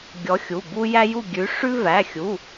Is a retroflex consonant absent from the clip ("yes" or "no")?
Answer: no